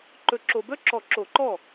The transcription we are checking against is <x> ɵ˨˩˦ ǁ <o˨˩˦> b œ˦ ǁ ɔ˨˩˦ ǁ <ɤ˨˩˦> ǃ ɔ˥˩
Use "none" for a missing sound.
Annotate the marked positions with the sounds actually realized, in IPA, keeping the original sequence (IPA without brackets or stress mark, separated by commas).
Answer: ǃ, o˨, o˨˩˦